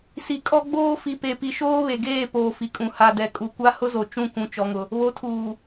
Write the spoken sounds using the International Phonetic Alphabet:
s i˨ kʼ ɔ˦ ɡ͡b oː˦ f i˨ p e˨ p i˨ ʃ oː˦ β e˨ ɡ eː˦˨ p oː˨ f i˨ kʼ ũ˨ h a˨ d ɛ˨ kʼ u˨ kʷ a˦ h ʊ˦ z o˨ t͡ʃ ũ˦˨ kʷ ũ˨ t͡ʃ ɔ˨ ŋ ʊ˨ | β o˨˦ tʰ uː˨

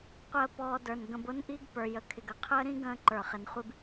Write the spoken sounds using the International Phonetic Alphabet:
qʷ əː˧ p ɔː˧ d ə˞˨ n ɡ ə̃˧ b ʊ˦ n ʔ i˦ ɡ p ə˞˨ j ə˨˦ kʰ ɪ˨ ɡ ə˧ qʰ əː˦ ɾ ĩ˦ ɡ ə̃ː˦ ǃ ə˞˨ χ ɪ˨˦ n χʷ i˦ b

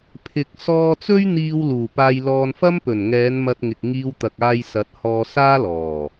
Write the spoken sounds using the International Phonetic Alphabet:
pʰ ɪ˨ k̚ s ɔː˧ t͡s ɵ˥ ɥ n̪ iː˧ w l uː˨˩ p aː˧ j l ɔː˧ n f ɐ˥ m p ɵ˨˩ n ŋ ɛː˨˧ n m ɐ˧ t̚ ŋ ɪ˨ k̚ ŋ iː˧ w t̪ ɐ˨ k̚ aː˧ j s ɐ˨˥ t̚ h ɔː˧ s aː˥ l ɔː˨˩

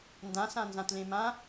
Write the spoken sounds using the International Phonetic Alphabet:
n d ã s ã n z ã t l ẽ m ã

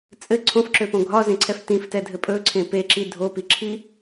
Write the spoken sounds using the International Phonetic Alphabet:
t͡sʼ ɘ ǀʰ õ f ǁ ø p õ ɡʱ ɒ z ẽ ǀʰ ɛ f t ĩ f t ɛ dʱ ɘ pʼ ɵ ǀʰ ẽ p e ǁ i dʱ o p i ǁʰ i

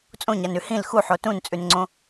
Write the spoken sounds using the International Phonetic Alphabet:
t͡sʼ õ ɲ a n ʉ h ĩ l x u ħ o t ũ n t͡sʼ ʉ n ŋ͡ǀ õ

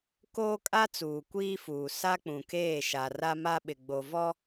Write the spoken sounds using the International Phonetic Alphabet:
k oː˦ kʼ a˦ t͡s uː˨ kʷ iː˦ f uː˨ s a˦ k͡p ũ˨ k eː˦˨ ʃ a˨ r a˦ m a˦ ɓ ɪ˨ ɡ͡b o˨ v ɔ˦

